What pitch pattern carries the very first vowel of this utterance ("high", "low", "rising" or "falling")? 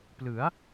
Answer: rising